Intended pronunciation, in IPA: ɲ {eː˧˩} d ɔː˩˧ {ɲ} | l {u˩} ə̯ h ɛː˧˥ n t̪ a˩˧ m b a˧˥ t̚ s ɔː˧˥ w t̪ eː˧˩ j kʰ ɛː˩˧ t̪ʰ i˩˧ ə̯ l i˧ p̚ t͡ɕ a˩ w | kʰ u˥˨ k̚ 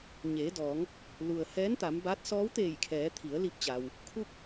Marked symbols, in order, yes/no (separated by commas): no, no, yes